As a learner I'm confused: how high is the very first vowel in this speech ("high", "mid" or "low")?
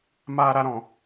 low